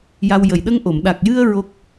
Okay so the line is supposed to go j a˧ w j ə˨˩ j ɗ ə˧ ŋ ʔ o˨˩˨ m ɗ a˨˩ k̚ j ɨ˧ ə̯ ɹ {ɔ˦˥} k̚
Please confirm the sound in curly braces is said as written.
no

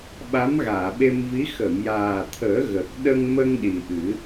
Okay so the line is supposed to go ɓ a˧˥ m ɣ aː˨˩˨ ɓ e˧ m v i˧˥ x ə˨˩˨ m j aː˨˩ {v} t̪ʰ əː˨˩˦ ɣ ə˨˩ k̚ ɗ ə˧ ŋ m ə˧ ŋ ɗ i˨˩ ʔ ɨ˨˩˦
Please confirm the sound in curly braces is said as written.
no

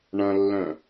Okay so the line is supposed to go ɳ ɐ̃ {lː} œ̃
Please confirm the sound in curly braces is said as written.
yes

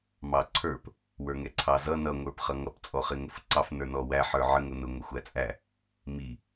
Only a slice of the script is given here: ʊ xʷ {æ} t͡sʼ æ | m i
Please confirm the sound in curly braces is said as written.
yes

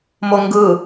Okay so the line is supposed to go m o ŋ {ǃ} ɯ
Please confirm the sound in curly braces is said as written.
no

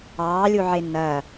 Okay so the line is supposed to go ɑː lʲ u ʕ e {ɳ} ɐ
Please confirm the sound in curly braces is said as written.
no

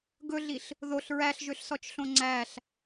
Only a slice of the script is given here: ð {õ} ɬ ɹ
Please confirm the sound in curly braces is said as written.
no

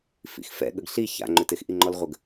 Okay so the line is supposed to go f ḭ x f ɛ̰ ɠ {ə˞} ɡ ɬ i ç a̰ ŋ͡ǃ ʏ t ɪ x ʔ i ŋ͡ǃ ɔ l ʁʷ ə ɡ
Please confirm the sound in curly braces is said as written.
no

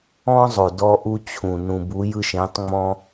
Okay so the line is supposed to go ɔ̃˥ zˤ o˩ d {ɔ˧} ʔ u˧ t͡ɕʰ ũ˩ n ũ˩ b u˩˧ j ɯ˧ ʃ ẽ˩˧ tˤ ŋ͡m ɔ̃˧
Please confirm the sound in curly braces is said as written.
yes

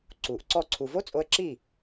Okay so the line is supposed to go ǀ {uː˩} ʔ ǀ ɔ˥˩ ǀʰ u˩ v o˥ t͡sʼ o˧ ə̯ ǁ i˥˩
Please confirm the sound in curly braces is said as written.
yes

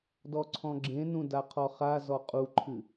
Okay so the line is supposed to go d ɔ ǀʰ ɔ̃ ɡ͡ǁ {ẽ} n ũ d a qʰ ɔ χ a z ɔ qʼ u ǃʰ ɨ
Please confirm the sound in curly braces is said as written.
yes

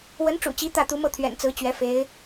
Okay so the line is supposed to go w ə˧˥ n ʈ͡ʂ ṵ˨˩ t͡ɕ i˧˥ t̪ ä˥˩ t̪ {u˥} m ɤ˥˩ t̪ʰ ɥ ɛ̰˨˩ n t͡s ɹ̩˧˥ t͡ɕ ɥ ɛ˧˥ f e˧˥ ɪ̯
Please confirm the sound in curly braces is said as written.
no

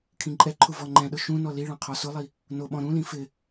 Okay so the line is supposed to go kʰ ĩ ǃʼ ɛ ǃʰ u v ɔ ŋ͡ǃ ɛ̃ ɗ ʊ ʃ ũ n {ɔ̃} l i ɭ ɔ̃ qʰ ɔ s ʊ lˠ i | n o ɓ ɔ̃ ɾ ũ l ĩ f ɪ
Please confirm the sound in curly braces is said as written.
no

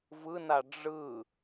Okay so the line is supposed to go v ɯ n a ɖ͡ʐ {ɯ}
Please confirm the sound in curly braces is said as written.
yes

